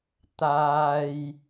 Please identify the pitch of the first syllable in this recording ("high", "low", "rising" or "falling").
low